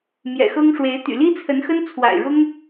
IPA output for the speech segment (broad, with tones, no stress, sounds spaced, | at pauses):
m j ɛ̰˨˩ x ɤ˥ ŋ ʂ w e˧˥ ɪ̯ t̪ y̰˨˩ l i˥ t͡sʰ ə˧˥ n x ə˥ n t͡sʰ w a̰˨˩ ɪ̯ ɻ ʊ˥ ŋ